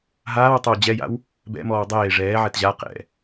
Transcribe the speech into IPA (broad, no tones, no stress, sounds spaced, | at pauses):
ɦ aː w tˤ o w d͡ʑ ɛ j a̰ w | b ɛ̰ m ɔː w dˤ eː ʐ ɛː ʕ ɛ t ʑ a q ɛ̰